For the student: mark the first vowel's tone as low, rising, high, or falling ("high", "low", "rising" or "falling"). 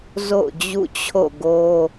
falling